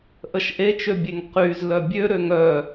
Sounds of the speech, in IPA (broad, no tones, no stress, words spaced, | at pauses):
ʔəʃʔet͡ʃøbʲeŋ qyz lœbʲøɾøŋ œ